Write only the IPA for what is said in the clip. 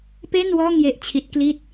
p e˥˩ n w ɔː˥˩ ŋ j e˦˥ ʔ t͡ɕʰ i˦˥ t̚ k l i˥˩ t̚

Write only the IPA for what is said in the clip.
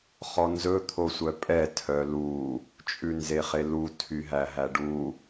χ ɔ n z ɵ t̪ʰ o sʷ œ pʼ ɛ tʰ œ l u | t͡ʃʼ ʉ n z e χ e l u tʰ y ɦ æ ɦ æ ɖ u

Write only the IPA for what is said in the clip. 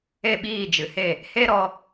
e˦˨ ɓ iː˦˨ d͡ʒ ɨ˨ h e˦˨ | h e˦ ɾ ɔ˧

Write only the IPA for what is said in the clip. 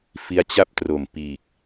f i˦˥ a̯ t͡ɕ a˥˩ p̚ t r o˨˩ m p iː˨˩ k̚

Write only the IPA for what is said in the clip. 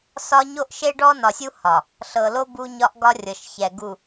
s ɒ˦ ɲ o˦ ʔ ʃ e˦ ɖ ɔ˦ n ɒ˨ sʲ u˦ h ɒ˨ | ɬ ɤ˨ l o˦ b u˦ ɲ ɒ˦ ʔ ɡ ɒ˦ rʲ ɤ˨ ʃ ç ɛ˨ ɡ u˨

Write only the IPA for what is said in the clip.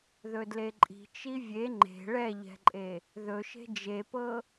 ð ɵ d l e ǃʼ i̤ t͡ʃ i vʲ e ŋ͡ǃ e̤ ɭ ɛ ʎ ɛ̤ ǃʼ e | ð ɵ ʃ e̤ d͡ʒ e p ɤ

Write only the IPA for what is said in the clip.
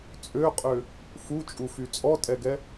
t͡sʼ ø qʼ ø | f u t͡ʃʼ u f y t͡sʼ ɔ tʼ ɛ ɡ ɛ

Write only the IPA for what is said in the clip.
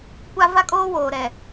kʷ a˦ v a˦ kʼ oː˦ w oː˨ ɾ ɛ˨

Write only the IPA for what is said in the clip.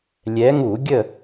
lʲ ɛ˨˦ ŋ u˧˩˧ ɡʲ ə˦˨

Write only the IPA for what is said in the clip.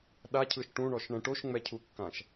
ɗ a cʰ ɯ ʃ ʈ ũ ɳ ɔ ʃ ɳ ɛ̃ ʈ o ʃ ŋ͡m ɛ cʰ u kː ã ʃ

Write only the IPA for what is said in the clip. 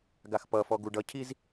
ɡ a x p ʌ f ɔ ɡ u ɖ ʌ cʰ i z

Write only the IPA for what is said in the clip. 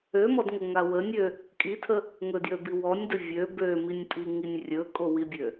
ø m ɔ d ŋ o ŋ a w ə nʲ ø | kʼ i tʰ ə | ŋ ɵ d j ø b i w ɔ nʲ d ə vʲ ø b ø m i nʲ pʼ i ŋ i nʲ rʲ ɵ kʼ o w i bʲ ø

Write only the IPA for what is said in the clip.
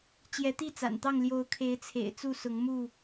t͡ɕ j ɛ˨˦ t̪ i˥˨ t͡s a̰˨˩ n t̪ ɑ˥˨ ŋ l j o˨˦ ʊ̯ kʰ e˨˦ ɪ̯ t͡sʰ ḛ˨˩ ɪ̯ t͡s u˥˨ s ʊ˨˦ ŋ m u˥˨

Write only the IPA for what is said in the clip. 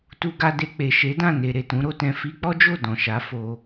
t u˧ ɡ a˧ d e˧ k͡p e˨ ʃ e˨˦ d ã˦˨ n e˨ ɾ e˨ t ũ˨˦ ɾ o˧ t ɛ̃˧ f i˧ k͡p ɔ˦ d͡ʒ o˦˨ d ɔ̃˨ ʃ a˨˦ f o˧

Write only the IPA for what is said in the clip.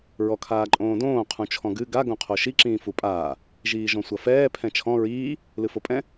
ɹ ɔ kʰ aː ǃʼ õː d õː qʰ ũ t͡ʃʰ ɔ̃ ɡ ɨ ɡ a ɡ õ qʰ o ʃ i ǁ ĩː f u pʼ aː | ʒ iː ʒ ɔ̃ sʷ ɐ f ɛː pʰ ɛ̃ t͡ʃʰ ɔ̃ ɹ iː | l ɨ f o pʼ ɛ̃

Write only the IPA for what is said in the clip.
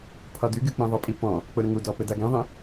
pʰ ɒ d y ɡ y k͡p ĩ ðˤ ə pʼ i p ɔ̃ | k͡p ʊ ɾ ə̃ ŋ u d ɔ p ɘ d a ɡ ĩ ðˤ ĩ

